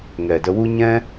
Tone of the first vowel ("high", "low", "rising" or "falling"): low